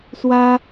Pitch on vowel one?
high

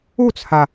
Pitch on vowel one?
falling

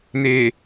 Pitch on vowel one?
low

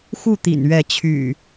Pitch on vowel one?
falling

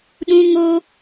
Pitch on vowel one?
high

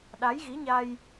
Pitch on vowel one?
rising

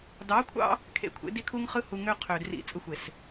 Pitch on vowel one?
rising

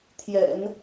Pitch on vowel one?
low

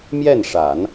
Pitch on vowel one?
falling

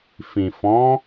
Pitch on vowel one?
low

